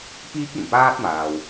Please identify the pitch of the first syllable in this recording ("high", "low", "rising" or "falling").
high